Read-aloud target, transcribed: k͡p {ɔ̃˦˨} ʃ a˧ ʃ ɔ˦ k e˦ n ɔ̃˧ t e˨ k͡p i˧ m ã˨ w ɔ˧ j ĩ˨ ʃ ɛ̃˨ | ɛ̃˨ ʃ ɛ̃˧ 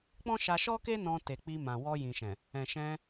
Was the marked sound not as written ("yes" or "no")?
yes